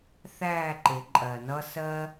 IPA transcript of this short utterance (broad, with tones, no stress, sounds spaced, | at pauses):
θ æː˥˨ ǃ ɪ˩˧ ǃʼ ɜ˩ n ʌ˧ s ɜ˧